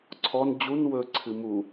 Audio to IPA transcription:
ǀʰɔn d͡ʑun wɵǀʰɨ mu

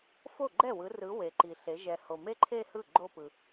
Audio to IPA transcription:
fo˥˩ɡ͡ǃɛ˥˩wɯ˨˦rɯ˨˦ we˨ǃi˨ɬe˨˦ ʒɛ˨ho˨me˥˧ ǃʰe˥˧hɯ˥˩ ɡ͡ǃo˥˧pɯ˨

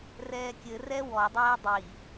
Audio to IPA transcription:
rɛːkʲɘ rɛwɔ dˤɜːdˤi

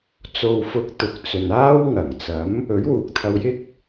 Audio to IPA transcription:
t͡so˨wfʊ˨˥k̚ t̪ʊ˨˥k̚ t͡sɵ˨naː˥w ŋɐ˨˩ŋ t͡sɐ˨˥m | ɵ˨˥ɥwuː˨k̚t̪ʰɐ˧wjɪ˥k̚

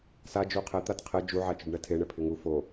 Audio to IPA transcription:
sad͡ʒu qʰɛ t̪atqʰɛ d͡ʒuʕat͡ʃʊɖ ɳɛtʰeɳɛ pʰɪŋu fo

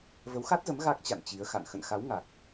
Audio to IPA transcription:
və˨˦wxa˦˥t̚zə˨˦m ɣa˦˥k̚t͡ɕa̰˧˨n t͡ɕi˨˦ə̯xa̰˧˨n xə̰˧˨nxa˨˦w ŋa˨˩k̚

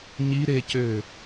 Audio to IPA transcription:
ɲi ɾecø

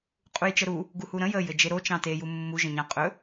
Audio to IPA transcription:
qʼujt͡ʃəɾu | ɡuhuɾə̃ jə jɘd͡ʒeɾo t͡ʃɑ̃te jumːu ʒə̃ɲɑ̃ qʼɵ

